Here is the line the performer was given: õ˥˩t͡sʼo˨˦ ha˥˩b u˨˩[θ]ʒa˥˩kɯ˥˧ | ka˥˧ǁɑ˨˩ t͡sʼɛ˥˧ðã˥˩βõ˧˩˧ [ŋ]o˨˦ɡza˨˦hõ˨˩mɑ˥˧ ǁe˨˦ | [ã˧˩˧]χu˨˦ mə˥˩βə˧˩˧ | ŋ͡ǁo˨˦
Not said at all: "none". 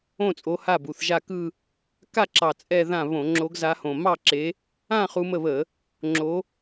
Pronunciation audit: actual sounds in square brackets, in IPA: θ, ŋ͡ǁ, ã˥˧

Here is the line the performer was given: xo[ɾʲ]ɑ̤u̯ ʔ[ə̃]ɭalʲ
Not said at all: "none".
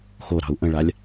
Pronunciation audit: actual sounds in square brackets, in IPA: ɾ, ə̃

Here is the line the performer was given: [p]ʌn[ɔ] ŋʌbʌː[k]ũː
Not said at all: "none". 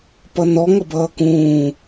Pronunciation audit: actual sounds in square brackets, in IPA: p, ɔ, k

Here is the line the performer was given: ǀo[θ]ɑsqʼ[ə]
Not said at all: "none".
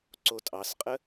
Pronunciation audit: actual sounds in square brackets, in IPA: tʼ, ə

